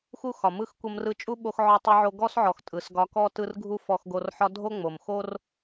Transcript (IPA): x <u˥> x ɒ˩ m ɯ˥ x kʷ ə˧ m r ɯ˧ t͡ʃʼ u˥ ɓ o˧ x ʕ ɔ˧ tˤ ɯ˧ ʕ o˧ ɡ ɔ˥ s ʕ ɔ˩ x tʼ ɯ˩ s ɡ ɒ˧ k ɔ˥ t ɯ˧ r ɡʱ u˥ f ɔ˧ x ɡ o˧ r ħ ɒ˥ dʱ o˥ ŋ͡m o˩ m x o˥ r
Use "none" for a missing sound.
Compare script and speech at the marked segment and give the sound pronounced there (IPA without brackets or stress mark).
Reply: u˥